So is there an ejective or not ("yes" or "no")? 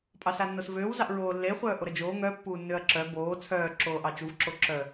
yes